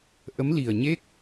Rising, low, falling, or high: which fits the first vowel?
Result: rising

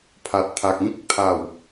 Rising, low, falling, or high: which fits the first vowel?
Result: low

